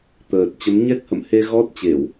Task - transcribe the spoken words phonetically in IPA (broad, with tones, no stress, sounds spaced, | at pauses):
t̪ əː˨˩ t̚ t͡ɕ ə˨˦ m ɲ ɛ˦˥ k̚ h ə̰˧˨ m h e˧ ɣ ɔ˦˥ t̚ t͡ɕ e˧˩˨ w